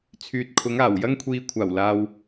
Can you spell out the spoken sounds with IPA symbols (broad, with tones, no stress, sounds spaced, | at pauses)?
t͡sʰ yː˨ t̚ kʰ ʊ˨˧ ŋ aː˨˩ w j ɐ˥ ŋ kʷʰ iː˧ kʷʰ aː˨˩ w l aː˨ w